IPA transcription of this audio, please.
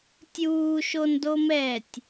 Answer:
tʲuːʃondomɛːtʲ

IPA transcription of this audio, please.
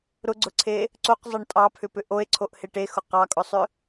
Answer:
ɾʊɡ͡ǀʊǀʰe | ǀoqzˤʌɳ tʼɑpʰʏpʏ ʔoe̯ǀʰoʔhe ʈexʊ qɑkʼʊsˤʏ

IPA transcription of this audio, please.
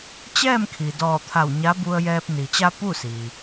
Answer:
t͡ɕɛː˥˨mkʰi˩ dɔː˧˩t̪ʰa˧˩w ɲa˧˥bu˧ə̯jɛː˧p̚ ni˩t͡ɕa˧ pu˥˨siː˩

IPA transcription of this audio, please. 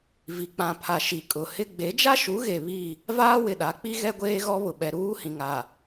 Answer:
vi˨k͡pã˨pʰa˨ ʃi˨kʼʊ˨hɪ˦ ɡ͡be˨˦d͡ʒa˦ʃu˨˦ɣe˨ βi˦˨ | vaː˦wɪ˨ɗa˨˦k͡pi˦ ɣɛ˦ɡʷeː˦ɣɔ˦βʊ˨ ɓɛ˨ɾuː˦hĩ˨ŋa˨

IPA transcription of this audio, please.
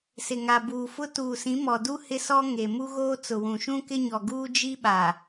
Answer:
sɪ˨ŋa˨buː˨fʊ˦ tuː˨sĩ˨˦ mɔ˨du˦ hɪ˦sɔ˦ ŋe˨ mu˦ɣoː˦ t͡sʊ˨wũ˨ ʃũ˦kɪ˦ɲɔ˨ɡuː˦ d͡ʒi˦ ɓaː˨

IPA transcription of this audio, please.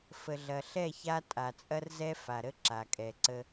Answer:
fə˨ɮɐ˨ ɬɛ˦˨ ça˦ tʼa˨t͡sʼɐ˦rzɛ˦ fa˨ɾə˦ ǁa˨kʼɛ˨ǀə˦

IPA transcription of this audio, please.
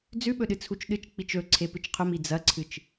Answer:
d͡zʉɓɵɗɨ t͡sʰut͡ʃɗɨt͡ʃ k͡pit͡ʃɵ ǀʰepɨt͡ʃqʰɵmi d͡zɐǀʰɨt͡ʃ

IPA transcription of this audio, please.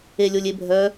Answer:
elʲolʲebʱœ

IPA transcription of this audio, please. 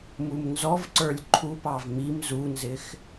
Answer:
mumnzɔvǀə˞lʲ ǃʰupɑv mim zunzɪx

